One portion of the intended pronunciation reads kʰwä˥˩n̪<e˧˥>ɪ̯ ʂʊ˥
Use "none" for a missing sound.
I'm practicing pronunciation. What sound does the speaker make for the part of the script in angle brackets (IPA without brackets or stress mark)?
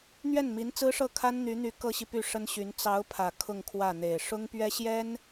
e˨˩